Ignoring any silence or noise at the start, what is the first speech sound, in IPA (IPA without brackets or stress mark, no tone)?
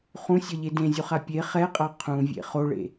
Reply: χ